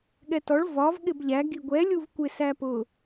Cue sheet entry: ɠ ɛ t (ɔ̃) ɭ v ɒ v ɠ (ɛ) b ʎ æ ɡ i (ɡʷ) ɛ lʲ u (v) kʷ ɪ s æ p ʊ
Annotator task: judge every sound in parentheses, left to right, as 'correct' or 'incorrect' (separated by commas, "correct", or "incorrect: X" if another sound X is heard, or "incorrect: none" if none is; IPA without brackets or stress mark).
incorrect: ɔ, incorrect: ɪ, correct, correct